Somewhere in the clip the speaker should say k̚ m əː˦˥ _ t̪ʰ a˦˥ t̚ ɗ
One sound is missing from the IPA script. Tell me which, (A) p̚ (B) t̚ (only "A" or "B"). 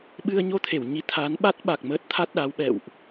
B